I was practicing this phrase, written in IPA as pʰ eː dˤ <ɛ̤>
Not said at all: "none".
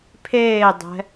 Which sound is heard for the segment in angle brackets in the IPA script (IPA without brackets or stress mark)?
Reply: ɛ̤